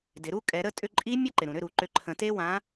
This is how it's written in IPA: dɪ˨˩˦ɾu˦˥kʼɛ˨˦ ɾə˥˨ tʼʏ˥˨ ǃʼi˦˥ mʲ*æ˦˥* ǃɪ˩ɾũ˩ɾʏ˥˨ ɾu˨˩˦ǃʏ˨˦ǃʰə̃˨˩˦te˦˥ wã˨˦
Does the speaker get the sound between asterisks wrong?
yes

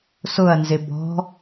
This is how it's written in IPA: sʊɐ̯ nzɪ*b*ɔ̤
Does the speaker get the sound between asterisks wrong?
no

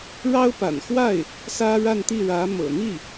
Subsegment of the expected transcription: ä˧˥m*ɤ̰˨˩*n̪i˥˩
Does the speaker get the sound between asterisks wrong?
no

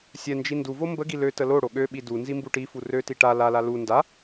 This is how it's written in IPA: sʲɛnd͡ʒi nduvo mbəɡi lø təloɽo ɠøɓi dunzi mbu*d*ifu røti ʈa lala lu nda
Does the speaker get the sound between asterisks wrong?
yes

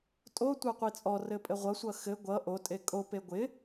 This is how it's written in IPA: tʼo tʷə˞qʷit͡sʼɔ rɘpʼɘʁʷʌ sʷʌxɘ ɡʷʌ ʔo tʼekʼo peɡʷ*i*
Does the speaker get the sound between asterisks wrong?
yes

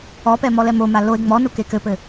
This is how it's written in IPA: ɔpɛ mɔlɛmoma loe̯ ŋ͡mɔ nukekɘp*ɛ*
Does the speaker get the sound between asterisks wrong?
yes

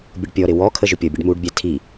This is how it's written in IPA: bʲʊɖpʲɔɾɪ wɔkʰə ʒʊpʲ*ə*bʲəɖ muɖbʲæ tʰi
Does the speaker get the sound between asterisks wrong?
yes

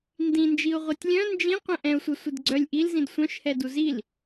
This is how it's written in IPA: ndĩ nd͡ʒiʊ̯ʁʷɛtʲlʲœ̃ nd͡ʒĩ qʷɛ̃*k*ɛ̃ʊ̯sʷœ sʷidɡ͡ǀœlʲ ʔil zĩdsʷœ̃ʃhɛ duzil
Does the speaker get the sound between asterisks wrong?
yes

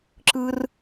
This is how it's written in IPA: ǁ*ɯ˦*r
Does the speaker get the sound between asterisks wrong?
no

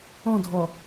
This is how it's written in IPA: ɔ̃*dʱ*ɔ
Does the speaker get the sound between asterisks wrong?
no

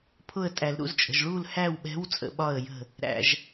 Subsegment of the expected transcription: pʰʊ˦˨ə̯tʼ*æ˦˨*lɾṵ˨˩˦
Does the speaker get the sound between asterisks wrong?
yes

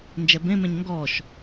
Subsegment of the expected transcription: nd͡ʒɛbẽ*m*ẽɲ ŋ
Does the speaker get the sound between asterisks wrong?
no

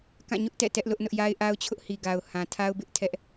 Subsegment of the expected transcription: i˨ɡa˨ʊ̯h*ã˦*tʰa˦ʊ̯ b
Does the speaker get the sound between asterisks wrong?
yes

